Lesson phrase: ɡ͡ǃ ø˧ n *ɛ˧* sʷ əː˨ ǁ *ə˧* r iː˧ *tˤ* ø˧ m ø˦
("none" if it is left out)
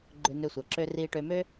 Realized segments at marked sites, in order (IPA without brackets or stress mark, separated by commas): ø˧, ø˧, ʈ